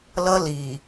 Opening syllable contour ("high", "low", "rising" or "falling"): high